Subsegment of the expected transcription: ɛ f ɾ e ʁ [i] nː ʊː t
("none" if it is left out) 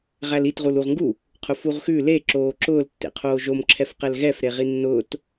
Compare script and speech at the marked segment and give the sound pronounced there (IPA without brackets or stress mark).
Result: i